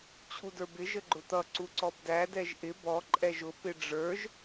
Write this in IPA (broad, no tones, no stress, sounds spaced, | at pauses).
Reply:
t͡ɕʰ u d ə˞ b ɪ ʒ ə ɡ͡ǃ ʊ t̪ ʌ ǀ u ǀ ɔ b d æ d ɛ ʒ ʔ ɪ b ɔ ǃʼ ɛ ʒ ʊ p ɪ ɖ͡ʐ ə˞ ʒ